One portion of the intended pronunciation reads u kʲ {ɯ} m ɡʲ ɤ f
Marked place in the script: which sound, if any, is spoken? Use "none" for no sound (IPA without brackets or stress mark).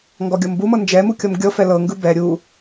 ɤ